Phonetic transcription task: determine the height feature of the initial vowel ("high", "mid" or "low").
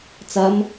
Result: low